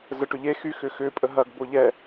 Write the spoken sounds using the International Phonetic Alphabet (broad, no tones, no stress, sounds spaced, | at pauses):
z ə ʈ ʏ ʎ e x y x ʏ x ʏ pʼ ə ɦ ɐ ɡ b o ʎ ɛ